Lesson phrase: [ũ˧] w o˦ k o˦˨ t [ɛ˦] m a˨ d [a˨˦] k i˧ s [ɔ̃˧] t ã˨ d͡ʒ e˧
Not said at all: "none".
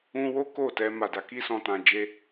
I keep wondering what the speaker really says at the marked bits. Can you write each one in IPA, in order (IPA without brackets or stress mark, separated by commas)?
ũ˦, ɛ˧, a˨˦, ɔ̃˨